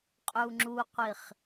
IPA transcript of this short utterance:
qʼ u ŋ͡ǁ u qʷ i χ

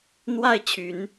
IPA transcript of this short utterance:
n̪ w a˥˩ ɪ̯ t͡ɕʰ y˨˩˦ n

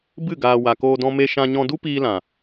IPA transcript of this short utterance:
b ɨ˦˨ ɡ aː˨ w a˨ k oː˧ d ɔ̃˧ m e˧ ʃ ã˧ ɲ ɔ̃˧ d u˦ p iː˧ l ã˨

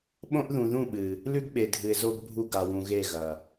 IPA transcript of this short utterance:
ɓ õ˦ ʔ ð ũ˨ ð ũ˦˨ ɓ ɨ˨ | l ʉ˦ ɡ ɓ e˨ dʱ ɨ˨ ɪ̯ z o˦ ɡ bʱ u˦ ɡ a˨ w ũ˨ ɣ e˦˨ ɣ ɐ˨

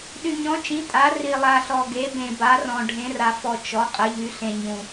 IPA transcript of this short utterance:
ɗ y˨ ɲ ɔ̃˩˥ t͡ʃ ĩ˩˥ tʼ a˩˥ r i˨ lˠ a˨ ɬ ɔ˨ ɡ e˩˥ b ẽ˨ b a˩˥ r ɔ̃˨ ɖʱ ẽ˩˥ r a˨ f ɔ˨ t͡ʃ ɔ˩˥ qʼ ə˩˥ ʎ y˩˥ ɬ ẽ˨ ɲ ũ˨

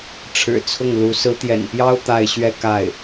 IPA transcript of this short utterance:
ʈ͡ʂʰ ɻ̩˨˩ t͡sʰ ʊ˥˩ ŋ l u˧˥ s ɹ̩˧˥ t̪ j ɛ̰˨˩ n p j ɑ˥ ʊ̯ t̪ a˥˧ ɪ̯ ɕ ɥ ɛ˥˧ k a˥˩ ɪ̯

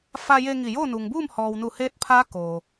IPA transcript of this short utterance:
f a˧ j e˧ ŋ i˧˩ j oː˥˨ n u˩ ŋ b uː˥˨ m h ɔː˩ w n u˧˩ h eː˧˥ t̚ pʰ aː˧˥ k oː˩

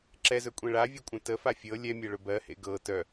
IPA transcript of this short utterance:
ǁ ɛ z ɵ kʷʼ ẽ ɭ a vʲ u kʷʼ œ̃ t ə f a fʲ ɤ lʲ ɛ mʲ ɜ ɭ ɵ b ɜ h ḛ ɡ ɤ t œ

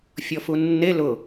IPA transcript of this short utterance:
fʲ ɔ f u nː e l ʊ

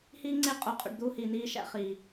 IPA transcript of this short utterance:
h iː˦ ŋ͡ǀ e˦ qʼ o˨ qʼ ṵ˨ ɖ d̪ uː˦ h iː˨ n iː˦ ʃ æ̰˦ χ iː˨

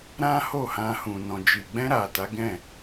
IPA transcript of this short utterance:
ɾ ã˦ h o˦˨ h ã˧ h ũ˨ n ɔ̃˨ d͡ʒ i˨ ɡ͡b ɛ̃˧ ɾ a˨ t a˨˦ ɡ ɛ̃˦˨

